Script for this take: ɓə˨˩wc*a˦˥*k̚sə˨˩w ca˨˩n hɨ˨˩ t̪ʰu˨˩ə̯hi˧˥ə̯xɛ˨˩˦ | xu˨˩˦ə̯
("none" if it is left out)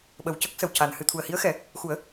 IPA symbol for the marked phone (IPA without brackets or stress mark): ə˦˥